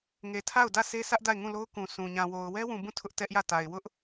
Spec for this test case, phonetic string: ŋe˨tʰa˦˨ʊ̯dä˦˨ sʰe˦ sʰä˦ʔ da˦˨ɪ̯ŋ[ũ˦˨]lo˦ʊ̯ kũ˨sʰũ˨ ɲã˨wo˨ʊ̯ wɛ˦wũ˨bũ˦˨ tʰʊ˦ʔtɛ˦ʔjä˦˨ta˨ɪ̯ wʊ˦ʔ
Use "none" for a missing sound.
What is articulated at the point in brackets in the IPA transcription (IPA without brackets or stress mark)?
ũ˦˨